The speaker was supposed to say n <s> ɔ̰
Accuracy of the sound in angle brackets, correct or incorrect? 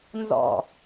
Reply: incorrect